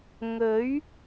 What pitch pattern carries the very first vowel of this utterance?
rising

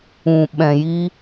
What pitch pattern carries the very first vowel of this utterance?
low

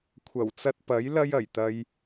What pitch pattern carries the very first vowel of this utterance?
low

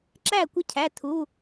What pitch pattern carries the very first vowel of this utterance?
falling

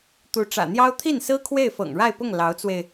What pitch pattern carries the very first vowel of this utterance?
rising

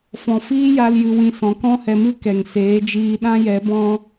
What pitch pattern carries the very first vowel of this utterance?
low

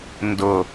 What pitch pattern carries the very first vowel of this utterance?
low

